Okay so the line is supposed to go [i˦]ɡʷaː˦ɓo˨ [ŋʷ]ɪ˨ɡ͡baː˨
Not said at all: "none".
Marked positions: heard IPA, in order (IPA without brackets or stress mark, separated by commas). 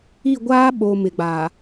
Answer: i˦˨, m